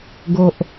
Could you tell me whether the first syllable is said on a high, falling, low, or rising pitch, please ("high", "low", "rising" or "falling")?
low